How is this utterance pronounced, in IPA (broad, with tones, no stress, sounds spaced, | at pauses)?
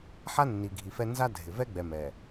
ħ a˦ nː i˨ ɡʱ i˨ f ɛ˦ n z a˦ dʱ ɪ˨ v ɛ˦ ɡ͡b ɛ˨ m ɛ˨